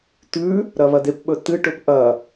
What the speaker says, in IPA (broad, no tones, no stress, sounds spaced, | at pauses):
t̪ ʉ | ɾ ɐ β ɐ d̪ e p ɓ ɵ t̪ ɨ ʈ ɵ p ʔ ɐ